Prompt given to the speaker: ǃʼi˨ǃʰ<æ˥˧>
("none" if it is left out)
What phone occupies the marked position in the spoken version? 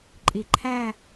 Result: æ˥˧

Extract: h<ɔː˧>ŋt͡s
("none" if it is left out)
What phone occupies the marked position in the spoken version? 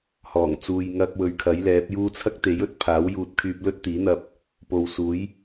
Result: ɔː˨˩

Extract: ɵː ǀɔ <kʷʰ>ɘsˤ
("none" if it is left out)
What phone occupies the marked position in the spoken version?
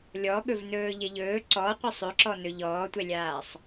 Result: qʷ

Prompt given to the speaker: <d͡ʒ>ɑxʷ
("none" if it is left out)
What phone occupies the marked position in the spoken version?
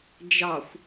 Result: d͡ʒ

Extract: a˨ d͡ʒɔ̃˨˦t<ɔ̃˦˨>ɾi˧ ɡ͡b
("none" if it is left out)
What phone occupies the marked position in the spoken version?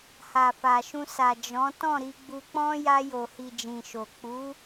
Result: ɔ̃˦˨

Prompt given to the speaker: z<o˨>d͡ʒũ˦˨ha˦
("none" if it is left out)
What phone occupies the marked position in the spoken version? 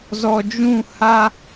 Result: ɔ˨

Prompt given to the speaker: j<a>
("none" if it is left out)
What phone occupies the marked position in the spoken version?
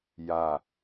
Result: a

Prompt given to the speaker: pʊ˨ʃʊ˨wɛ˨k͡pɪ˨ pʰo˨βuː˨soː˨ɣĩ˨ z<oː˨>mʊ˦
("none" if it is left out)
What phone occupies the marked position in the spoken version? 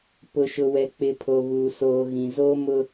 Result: oː˦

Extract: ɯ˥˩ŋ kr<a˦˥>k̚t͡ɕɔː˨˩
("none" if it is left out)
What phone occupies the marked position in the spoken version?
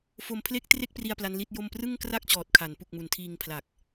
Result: a˥˩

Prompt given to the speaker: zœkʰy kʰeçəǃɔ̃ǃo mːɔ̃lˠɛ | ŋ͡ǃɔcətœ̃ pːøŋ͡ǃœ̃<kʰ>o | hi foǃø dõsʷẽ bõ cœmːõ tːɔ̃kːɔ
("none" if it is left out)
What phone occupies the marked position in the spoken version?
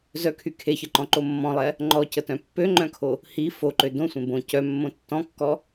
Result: kʰ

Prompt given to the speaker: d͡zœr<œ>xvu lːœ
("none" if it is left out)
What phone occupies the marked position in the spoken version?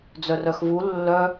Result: œ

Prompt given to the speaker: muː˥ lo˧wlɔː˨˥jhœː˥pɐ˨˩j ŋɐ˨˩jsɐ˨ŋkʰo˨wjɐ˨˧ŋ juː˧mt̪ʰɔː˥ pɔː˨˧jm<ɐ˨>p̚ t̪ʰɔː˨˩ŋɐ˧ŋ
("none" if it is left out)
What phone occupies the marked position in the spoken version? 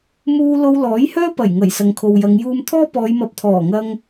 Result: ɐ˨˥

